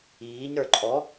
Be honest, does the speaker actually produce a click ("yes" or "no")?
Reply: yes